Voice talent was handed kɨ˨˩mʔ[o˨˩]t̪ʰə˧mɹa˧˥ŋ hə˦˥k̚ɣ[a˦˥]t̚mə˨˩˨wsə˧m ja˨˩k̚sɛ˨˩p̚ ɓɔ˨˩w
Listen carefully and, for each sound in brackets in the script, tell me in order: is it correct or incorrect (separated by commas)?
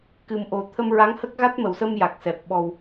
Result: correct, correct